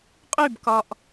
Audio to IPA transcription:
qʼ y b k ɒ ʔ

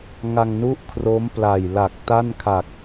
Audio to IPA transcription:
ŋ a˧ ŋ n u˥˩ ʔ kʰ r o˦˥ m p l a˨˩ j l a˨˩ k̚ t a˥˩ n kʰ a˨˩ k̚

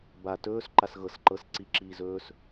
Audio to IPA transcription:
b a t ɵː s ǃ a s ɣ ɤ s ǃ ɤ s ǀ i ǁ iː z ɵː s

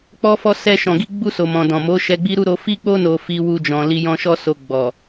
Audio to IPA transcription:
k͡p ɔ˦ f ɔ˦ s ɛ˧ ʃ ɔ̃˨ ɡ i˧ ɡ͡b u˧ s o˨ m ɔ̃˨ d ɔ̃˨ m o˨˦ ʃ ɛ˧ ɡ͡b i˦ ɾ u˦ ɾ o˧ f i˦ k͡p o˦ n o˧ f i˧ w u˧ d͡ʒ ɔ̃˨ l i˧ j ɔ̃˦ ʃ ɔ˦ s o˧ ɡ͡b ɔ˨

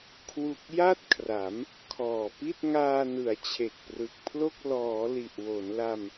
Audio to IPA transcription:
kʰ w u˨˩ k̚ j a˥˩ t̚ kʰ r a˩˦ m | kʰ ɔː˨˩ p i˥˩ t̚ ŋ aː˧ n ɯ˩˦ a̯ t͡ɕʰ e˨˩ k̚ p r ɯ˨˩ k̚ pʰ l o˥˩ k̚ l ɔː˩˦ l i˨˩ ʔ w o˩˦ n l a˧ m

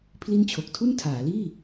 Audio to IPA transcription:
pʰ l i˥˩ n t͡ɕʰ o˨˩ k̚ tʰ u˥˩ n tʰ aː˩˦ l iː˥˩

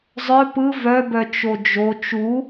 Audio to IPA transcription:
zˤ œ p ɯ v œ b œ t͡ʃ o d͡ʒ o t͡ʃ u

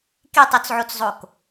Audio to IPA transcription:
k e tˤ o t͡s ʕ o t͡s zˤ o k

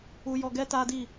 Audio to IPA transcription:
u˧ j ɔ˧ ɡ ɛ˦ t a˦ d i˦˨

